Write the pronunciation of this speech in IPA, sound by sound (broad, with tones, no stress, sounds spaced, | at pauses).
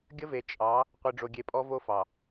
ɡʲ ə˦ v e˨ t͡ʃʼ ɑ˨˦ | qʷ i˨ ɖ͡ʐ o˨ ɡʲ e˨ pʼ ɔ˦ v o˦ f ɑ˨